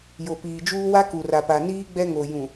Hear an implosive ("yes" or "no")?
no